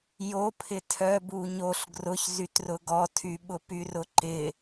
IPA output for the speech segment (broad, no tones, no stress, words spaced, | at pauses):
jo pʰɪtʰœ buɲoɬ ɡrʊçzytrʊ ɡɔtʰy ɓʊpyrʊǃɪ